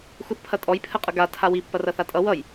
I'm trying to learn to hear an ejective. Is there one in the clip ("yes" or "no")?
yes